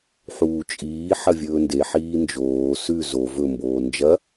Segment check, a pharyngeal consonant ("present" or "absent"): present